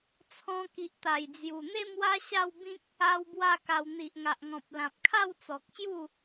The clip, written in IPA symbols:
t͡sʰɔ̃˧ki˨ʔt̪a˨˩jd͡zju˨˩ n̪e˥˧mwa˦ɕa˥˧wbĩ˦k̚ | a˦wbwa˥˧ka˧w n̪i˨ʔŋa˨ʔŋɔ̃˨p̚lã˨p̚ kʰa˥˧wt͡sɔ˨k̚ɕju˥˧

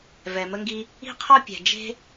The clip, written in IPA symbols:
vɛ˩mə˧ŋɡi˧ | i̤˥qʰɔ˥ pʲɛ̤˩d͡ʒe̤˥

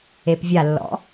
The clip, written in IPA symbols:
epvʲalːɔ̰

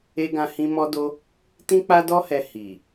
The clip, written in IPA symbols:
e˦ɡã˦hĩ˦ mɔ˦do˦ | tĩ˦k͡pa˦dɔ˦hɛ˧ hi˨

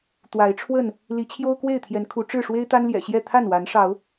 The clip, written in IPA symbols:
t̪wa˨˦ɪ̯ʈ͡ʂʰwə˥˨n | li˨˦t͡ɕʰjo˦ʊ̯kwe˥˨ɪ̯t̪ʰjɛ˨˦n kʰu˨˦ʈ͡ʂɻ̩˥˨ ʂwe˦ɪ̯t̪a˦nljɛ̰˨˩ɕjɛ˥˨ t̪ʰa˥˨nwa˨˦nʂɑ˨˦ʊ̯

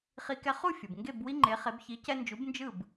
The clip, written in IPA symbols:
χi˧ kɛ˧χu˥˩ fʲɯ˩b ŋɡe˥˩b wi˥ŋ͡ǃe˩˥χe˩˥b çi˩˥cɛ˧nd͡ʒu˩˥b nd͡ʒɯ˥˩b

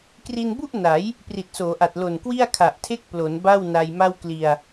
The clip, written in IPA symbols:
kri˧nbu˥˩ʔ na˩˦j | pri˨˩t̚soː˩˦ʔa˨˩t̚ lo˨˩nkwi˥˩a̯ kʰa˨˩ʔtʰe˥˩k̚plo˩˦n ba˥˩wna˧jma˥˩w kli˧a̯

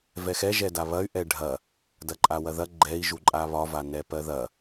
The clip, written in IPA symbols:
vɛxɛ ʒɛdaβɐy̯ ʔɛɖʱɐ | dɐǃʼawɐðɐ ɡ͡ǃɛi̯ʒu ǃʼaβɒvanɛ pɜðɐ

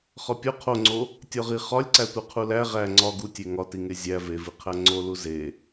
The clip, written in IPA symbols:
χɒpʲo qʰoŋ͡ǀo | tʲɒʁi χɒlʲǀætʷe qʰulæ ʁæ ŋ͡ǀɒ ɡu tʲeŋɒtiŋe zʲæ veviqʰæ ŋ͡ǀo luze

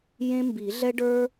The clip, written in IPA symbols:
jẽ˥mbi˨˩˦ ɮɛ˥ɖə˞˥

